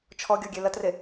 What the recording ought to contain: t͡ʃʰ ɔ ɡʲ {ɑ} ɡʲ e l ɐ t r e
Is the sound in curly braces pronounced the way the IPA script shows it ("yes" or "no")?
no